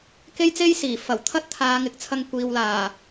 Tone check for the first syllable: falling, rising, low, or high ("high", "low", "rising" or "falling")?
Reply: high